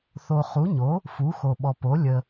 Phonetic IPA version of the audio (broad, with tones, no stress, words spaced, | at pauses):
θo˨ χu˩˥ɲo˩˥ | fu˩˥xo˨ɓɔ˨ po˩˥ lʲə˨